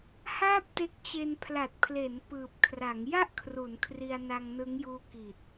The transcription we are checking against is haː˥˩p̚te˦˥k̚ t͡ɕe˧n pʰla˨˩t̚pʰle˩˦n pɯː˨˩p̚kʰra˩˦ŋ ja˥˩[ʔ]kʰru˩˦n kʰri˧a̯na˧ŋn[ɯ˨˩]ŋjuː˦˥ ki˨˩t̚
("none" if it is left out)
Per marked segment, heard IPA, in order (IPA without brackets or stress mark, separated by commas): ʔ, ɯ˦˥